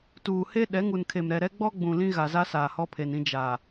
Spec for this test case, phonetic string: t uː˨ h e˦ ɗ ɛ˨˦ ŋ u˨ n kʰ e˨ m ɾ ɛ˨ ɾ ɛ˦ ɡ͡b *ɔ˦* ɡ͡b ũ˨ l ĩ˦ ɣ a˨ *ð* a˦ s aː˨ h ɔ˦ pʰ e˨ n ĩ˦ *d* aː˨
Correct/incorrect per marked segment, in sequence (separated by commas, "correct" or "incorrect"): correct, incorrect, incorrect